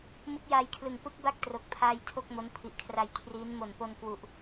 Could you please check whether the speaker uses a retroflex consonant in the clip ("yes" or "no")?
no